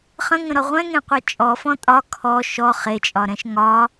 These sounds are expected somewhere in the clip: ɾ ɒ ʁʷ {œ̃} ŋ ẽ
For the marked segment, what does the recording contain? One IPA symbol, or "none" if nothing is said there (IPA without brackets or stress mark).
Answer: ɛ̃